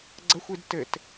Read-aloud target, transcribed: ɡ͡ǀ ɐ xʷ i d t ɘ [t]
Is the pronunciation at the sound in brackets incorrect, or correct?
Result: correct